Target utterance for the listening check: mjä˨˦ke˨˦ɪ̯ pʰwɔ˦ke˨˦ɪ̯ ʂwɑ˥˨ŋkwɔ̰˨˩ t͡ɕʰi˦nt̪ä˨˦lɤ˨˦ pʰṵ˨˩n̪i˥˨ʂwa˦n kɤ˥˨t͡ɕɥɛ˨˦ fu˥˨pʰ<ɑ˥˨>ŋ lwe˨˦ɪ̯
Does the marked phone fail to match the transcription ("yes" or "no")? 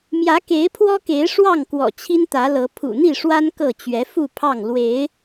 no